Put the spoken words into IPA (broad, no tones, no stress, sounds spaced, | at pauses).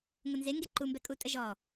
ŋ ʊ n z e ŋ ɡ e ǃ u m b ɛ kʼ u tʼ ə ʒ ɔ